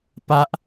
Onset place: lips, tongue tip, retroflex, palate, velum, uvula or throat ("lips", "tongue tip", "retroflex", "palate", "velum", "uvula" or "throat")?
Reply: lips